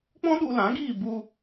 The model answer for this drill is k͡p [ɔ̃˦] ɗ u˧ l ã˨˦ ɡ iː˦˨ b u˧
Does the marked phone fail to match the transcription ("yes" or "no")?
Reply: no